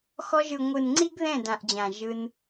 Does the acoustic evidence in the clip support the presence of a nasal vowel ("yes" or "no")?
yes